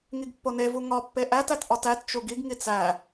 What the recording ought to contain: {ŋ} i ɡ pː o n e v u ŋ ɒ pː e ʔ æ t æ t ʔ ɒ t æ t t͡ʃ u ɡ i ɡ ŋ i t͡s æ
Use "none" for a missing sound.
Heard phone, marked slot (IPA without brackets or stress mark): ŋ